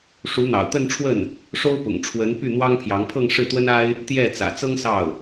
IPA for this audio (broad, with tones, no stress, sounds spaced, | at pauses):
ʂ u˧˥ n̪ ɑ̰˨˩ ʊ̯ t̪ ə˥˧ n ʈ͡ʂʰ w ə˥˩ n | ʂ o˥ ʊ̯ p ʊ̰˨˩ ŋ ʈ͡ʂʰ w ə˧˥ n p y˥˩ n̪ w ɑ˥ ŋ pʰ j ɑ˧˥ ŋ pʰ ɤ˥˧ ŋ ʂ ɻ̩˥˩ t̪ w ə˥ n a˥ ɪ̯ | t̪ j ɛ˥˩ t͡s ä̰˨˩ t͡s ɤ˥ ŋ s ɑ˥˩ ʊ̯